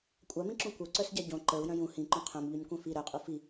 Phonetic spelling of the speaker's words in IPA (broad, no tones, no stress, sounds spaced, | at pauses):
kʷʼ a m ĩ ǁ ũ kʷ œ ǀ œ s ɟ a ɟ õ ǃ ə˞ u̯ j œ̃ j ũ h ĩ ǃ õ qʰ œ̃ m ʎ œ ɲ kʷ œ̃ f i ɾ œ qʼ u f i